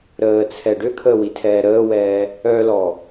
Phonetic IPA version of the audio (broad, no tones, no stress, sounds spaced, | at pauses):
ɾ əː t͡sʰ ɛ ɖ ø kʰ əː w i tʰ ɛː ɾ əː w ɛː | œ l ɔ